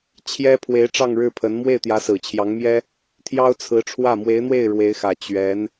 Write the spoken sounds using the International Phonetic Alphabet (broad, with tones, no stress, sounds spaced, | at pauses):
t͡ɕʰ j ɛ˥ pʰ w e˧˥ ɪ̯ ʈ͡ʂ ɑ˥˧ ŋ ɻ ɻ̩˥˩ pʰ ə˧˥ n m w e˥˩ ɪ̯ t̪ j ä˧˥ s ɹ̩˨˩ t͡ɕʰ j ɑ˧˥ ŋ m j ɛ˥ | t̪ʰ j ɑ˥ ʊ̯ t͡sʰ ɹ̩˧˥ ʈ͡ʂʰ w ä˥˩ m w e˧˥ ɪ̯ n̪ w e˥˩ ɪ̯ ɻ w e˧˥ ɪ̯ x ä˨˩ t͡ɕ ɥ ɛ˧˥ n